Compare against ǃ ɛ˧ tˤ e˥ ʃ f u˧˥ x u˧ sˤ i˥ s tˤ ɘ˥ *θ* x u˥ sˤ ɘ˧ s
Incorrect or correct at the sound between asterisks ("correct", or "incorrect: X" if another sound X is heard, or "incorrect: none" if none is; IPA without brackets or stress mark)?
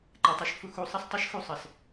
incorrect: ʃ